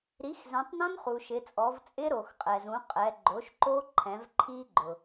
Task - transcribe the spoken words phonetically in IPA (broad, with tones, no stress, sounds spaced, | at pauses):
ɾ i˩˥ x z ɛ̃˩˧ tˤ n ɔ̃˦˥ n χ u˩ ʃ ɪ˩˧ t͡sʼ ɔ˩˧ v t͡sʼ ɪ˦˥ ɾ o˩ x qʼ ɛ˩ z ũ˩˥ qʼ ɛ˩˧ ɡ͡ǃ o˩˥ ʃ ǃ o˦˥ ǃʰ ɛ̃˩˧ v ǃʰ i˦˥ ɡ͡ǃ ʊ˩